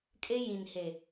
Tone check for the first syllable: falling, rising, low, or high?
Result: high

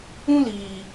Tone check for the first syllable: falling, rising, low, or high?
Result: high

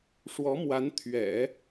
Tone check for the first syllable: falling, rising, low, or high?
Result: rising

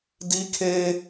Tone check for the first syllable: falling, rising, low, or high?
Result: high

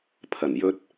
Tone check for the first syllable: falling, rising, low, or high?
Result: low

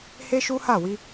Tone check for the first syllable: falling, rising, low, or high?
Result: high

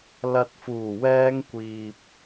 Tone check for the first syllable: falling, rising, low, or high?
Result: low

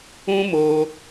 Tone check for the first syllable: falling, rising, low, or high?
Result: high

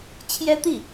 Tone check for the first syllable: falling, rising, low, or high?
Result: high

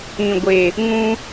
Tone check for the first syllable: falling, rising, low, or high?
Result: low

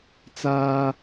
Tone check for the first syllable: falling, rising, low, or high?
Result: high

